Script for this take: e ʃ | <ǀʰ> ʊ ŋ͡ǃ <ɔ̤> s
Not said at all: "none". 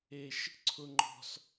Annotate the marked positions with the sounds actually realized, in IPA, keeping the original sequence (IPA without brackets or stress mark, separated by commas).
ǀʰ, ɔ̤